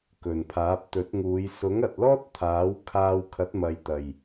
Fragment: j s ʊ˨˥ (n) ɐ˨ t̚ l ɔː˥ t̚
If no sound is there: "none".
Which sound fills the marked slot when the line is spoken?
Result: ŋ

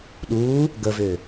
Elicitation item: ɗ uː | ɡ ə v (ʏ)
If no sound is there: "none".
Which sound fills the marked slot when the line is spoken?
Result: ʏː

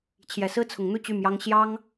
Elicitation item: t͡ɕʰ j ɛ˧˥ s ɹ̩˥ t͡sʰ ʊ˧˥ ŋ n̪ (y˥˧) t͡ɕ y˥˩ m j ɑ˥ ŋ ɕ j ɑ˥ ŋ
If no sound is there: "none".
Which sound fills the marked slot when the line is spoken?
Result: u˥˧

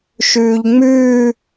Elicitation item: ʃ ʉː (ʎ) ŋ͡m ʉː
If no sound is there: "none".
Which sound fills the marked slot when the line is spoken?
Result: ʎ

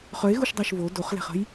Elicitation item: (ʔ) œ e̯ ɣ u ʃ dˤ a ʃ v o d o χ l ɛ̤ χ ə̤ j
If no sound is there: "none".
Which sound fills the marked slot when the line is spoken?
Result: χ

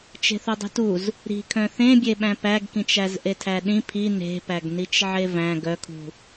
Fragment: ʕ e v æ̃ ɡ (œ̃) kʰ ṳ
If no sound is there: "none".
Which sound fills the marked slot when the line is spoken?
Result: œ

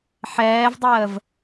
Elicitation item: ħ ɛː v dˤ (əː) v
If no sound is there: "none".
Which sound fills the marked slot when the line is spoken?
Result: əː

